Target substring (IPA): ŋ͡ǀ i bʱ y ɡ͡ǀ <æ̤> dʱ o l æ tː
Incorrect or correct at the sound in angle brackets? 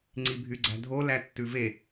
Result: correct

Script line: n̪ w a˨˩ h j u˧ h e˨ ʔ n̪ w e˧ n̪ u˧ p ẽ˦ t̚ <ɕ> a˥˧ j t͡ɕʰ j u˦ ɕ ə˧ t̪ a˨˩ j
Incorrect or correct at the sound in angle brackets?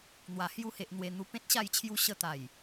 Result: correct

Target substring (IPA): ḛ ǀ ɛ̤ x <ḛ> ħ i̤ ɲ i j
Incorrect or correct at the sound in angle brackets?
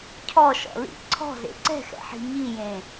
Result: incorrect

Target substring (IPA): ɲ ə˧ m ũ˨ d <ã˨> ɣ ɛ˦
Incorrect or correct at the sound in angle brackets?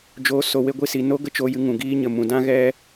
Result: incorrect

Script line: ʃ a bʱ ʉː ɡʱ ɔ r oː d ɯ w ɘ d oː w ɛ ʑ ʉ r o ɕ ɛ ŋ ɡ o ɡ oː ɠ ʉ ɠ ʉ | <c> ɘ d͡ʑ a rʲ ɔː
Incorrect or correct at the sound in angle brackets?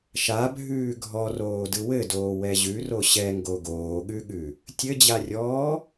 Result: incorrect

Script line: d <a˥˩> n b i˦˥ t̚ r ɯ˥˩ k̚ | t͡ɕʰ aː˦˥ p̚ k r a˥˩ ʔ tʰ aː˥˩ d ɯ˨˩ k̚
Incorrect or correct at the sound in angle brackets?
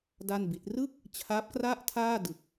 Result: correct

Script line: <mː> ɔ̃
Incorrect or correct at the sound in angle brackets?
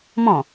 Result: incorrect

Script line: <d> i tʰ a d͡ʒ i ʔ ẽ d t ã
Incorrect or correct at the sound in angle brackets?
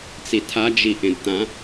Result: incorrect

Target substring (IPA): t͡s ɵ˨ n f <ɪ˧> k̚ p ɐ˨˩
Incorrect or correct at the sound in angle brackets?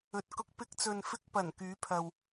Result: correct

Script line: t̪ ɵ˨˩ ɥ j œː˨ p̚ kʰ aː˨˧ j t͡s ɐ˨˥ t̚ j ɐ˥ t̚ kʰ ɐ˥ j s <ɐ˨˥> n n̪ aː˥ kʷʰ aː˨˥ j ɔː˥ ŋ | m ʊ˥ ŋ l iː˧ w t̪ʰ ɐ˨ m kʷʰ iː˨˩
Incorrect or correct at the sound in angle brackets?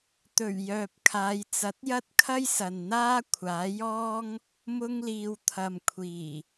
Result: incorrect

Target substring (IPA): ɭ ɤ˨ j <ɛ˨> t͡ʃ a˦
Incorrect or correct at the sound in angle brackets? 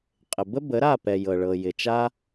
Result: incorrect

